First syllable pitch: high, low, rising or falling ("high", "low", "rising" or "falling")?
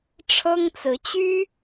high